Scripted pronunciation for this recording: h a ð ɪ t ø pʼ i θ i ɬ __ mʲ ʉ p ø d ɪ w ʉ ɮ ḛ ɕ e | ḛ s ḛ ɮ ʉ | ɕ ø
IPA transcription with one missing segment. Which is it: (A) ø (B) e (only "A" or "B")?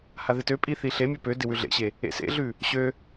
B